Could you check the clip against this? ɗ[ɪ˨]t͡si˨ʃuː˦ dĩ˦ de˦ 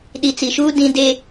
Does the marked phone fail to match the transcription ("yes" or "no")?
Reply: yes